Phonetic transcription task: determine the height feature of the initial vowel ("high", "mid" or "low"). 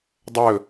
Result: mid